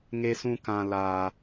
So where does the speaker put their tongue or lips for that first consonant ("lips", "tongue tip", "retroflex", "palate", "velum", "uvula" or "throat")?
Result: velum